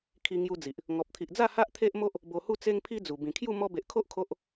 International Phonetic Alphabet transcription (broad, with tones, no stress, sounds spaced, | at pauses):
kʰ i˧ ŋ j u˧ d͡z i˨ ʔ | ŋ ɔ˨ p̚ t̪ʰ i˨ ʔ d͡z a˥˧ h a˦ ʔ t̪ʰ e˦ ʔ m o˦ ʔ | b o˧ h u˥˧ t͡s e˦ ŋ pʰ i˦ d͡z u˨˩ b ĩ˨˩ kʰ j u˥˧ m ɔ˧ b e˨ ʔ kʰ o˦ ʔ kʰ o˦ ʔ